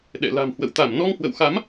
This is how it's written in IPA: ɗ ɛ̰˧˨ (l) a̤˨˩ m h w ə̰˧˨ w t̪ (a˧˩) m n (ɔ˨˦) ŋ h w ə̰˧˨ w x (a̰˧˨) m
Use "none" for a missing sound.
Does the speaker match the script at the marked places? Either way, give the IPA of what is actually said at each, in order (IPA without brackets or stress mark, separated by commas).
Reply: l, a˧˩, ɔ˧, a˨˦